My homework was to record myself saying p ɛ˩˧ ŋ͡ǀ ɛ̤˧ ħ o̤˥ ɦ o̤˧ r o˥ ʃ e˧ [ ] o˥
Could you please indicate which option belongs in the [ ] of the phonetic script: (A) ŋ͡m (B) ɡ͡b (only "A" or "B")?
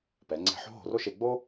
B